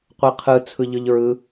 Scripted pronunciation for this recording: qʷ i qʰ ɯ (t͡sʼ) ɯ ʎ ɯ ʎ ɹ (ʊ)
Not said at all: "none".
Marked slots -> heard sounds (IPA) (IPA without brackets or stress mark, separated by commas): t͡sʰ, ɯ